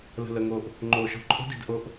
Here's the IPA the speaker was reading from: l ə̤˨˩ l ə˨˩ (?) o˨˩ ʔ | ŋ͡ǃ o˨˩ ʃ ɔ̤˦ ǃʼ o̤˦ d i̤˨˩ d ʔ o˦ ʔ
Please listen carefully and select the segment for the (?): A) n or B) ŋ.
B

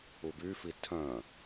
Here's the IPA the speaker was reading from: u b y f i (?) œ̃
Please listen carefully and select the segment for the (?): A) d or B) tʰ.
B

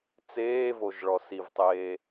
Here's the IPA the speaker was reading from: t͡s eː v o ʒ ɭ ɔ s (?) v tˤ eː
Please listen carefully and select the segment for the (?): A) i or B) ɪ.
A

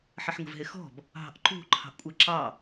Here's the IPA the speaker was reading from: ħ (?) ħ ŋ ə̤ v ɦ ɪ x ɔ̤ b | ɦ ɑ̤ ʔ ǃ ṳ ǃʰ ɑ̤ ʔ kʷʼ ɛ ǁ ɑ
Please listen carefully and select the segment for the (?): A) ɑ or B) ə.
B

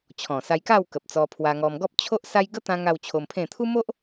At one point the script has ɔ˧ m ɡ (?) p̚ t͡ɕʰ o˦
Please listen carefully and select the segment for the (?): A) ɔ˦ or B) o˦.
A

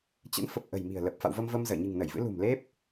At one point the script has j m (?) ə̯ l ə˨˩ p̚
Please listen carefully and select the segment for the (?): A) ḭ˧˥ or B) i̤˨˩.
B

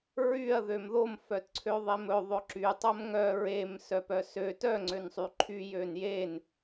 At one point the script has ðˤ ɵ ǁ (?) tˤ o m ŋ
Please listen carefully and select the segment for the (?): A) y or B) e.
A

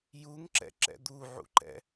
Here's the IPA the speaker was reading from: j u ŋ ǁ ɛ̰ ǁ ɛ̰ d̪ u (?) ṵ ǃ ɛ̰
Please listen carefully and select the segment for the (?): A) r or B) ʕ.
B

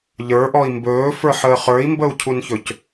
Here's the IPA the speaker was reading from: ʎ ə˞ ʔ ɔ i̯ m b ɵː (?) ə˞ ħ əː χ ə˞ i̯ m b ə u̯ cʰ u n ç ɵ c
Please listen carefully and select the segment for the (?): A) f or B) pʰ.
A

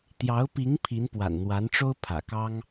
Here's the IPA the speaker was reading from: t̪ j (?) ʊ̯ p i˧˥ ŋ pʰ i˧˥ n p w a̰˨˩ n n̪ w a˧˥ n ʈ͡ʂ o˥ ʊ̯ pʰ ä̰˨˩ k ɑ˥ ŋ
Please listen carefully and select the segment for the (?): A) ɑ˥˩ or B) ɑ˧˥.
B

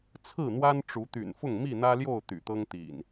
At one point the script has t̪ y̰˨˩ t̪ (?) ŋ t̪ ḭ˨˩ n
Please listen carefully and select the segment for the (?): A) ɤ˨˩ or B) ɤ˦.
B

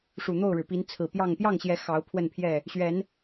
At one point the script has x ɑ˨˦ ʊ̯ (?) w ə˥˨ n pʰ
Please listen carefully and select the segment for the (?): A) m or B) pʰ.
B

